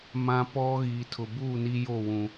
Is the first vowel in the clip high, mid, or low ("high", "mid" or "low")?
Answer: low